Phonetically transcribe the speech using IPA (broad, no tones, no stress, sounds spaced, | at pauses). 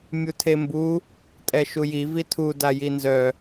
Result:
mʲ u tʰ e m b u | tʼ ɛ ʃ u j i v i tʰ u d a j i n z œ